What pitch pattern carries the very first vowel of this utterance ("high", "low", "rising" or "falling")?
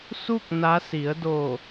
falling